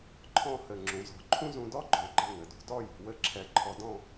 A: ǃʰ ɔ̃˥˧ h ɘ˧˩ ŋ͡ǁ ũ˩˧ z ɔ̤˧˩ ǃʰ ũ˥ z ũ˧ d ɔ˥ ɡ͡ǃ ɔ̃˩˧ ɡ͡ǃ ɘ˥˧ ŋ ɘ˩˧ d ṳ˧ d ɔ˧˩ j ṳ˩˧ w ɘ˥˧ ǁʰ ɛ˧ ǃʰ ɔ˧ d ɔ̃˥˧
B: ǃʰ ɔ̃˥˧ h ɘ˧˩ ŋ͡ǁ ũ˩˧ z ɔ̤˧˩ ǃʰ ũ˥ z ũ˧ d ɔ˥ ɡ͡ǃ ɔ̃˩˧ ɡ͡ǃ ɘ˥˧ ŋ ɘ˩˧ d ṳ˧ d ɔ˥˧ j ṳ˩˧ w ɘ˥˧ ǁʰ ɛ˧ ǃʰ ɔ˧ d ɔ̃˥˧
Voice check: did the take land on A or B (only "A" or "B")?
B